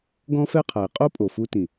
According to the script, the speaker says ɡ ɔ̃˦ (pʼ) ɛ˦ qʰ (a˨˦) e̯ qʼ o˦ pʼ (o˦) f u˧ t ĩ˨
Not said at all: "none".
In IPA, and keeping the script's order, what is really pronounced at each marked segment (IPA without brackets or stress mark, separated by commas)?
f, a˨, o˨